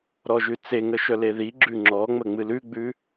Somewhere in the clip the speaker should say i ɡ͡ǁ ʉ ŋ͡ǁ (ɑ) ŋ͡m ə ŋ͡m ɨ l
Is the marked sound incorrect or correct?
incorrect